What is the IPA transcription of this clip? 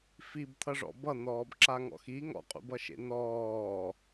f i b t̪ʰ ʌ ʐ ɔ̰ b ʌ n̪ ɔː b ǁ a ŋ ɔ̰ x i ŋ ɔ̰ qʼ ṵ b ʌ ʃ ḛ n ɔː

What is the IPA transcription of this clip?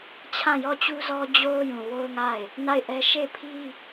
t͡ɕʰ ã˦˨ j ɔ˦˨ t͡ɕ u˦ z ɔ˦ d͡ʑ o˦ ʊ̯ j ũ˨ w o˦ ʊ̯ ŋ a˦˨ ɪ̯ | n a˦˨ ɪ̯ ʔ ɛ˦ ʃ e˦˨ ɪ̯ pʰ i˦

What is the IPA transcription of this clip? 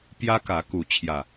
p j ä˦ k ä˨˦ k u˨˦ t͡ɕʰ j ä˨˩

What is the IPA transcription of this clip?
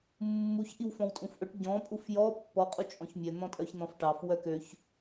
mː u ç ʔ i w f ɔ̃ w tʼ ũ f ʔ ɵ ʈ ɟ ɔ̃ pʼ u f j ɔ pː ɔ qʼ u t͡ʃʼ ɔ̃ ç mʲ œ n̪ ɔ̃ tʼ œ ç n̪ ɔ̃ f ʈ ɑ f w œ k ø ç

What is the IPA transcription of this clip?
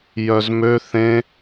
j œ z m ø θ ẽ

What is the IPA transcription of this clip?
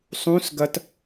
sˤ ũ s ɡ ɐ t

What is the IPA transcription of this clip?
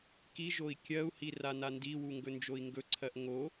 k i ʒ o i̯ kʲ ɜ u̯ h i r a n a n d i w u ŋ ɡ ɵ n d͡ʒ o i̯ ŋ ɡ ɵ ǀʰ ɜ ʔ ŋ o

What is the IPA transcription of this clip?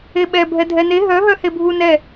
e ɓ ɛ bʱ ɛ dʱ ɛ n e ɦ œ ɦ œ h e bʱ u n ɛ

